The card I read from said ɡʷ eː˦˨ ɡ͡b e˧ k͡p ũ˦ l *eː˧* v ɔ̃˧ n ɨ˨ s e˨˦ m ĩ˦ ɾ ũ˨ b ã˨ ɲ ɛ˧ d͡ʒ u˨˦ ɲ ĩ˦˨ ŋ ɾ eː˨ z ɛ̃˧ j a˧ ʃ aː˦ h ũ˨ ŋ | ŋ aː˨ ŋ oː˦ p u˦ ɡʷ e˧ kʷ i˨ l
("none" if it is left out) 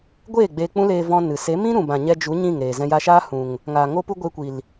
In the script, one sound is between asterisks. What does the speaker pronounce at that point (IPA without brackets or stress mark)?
eː˧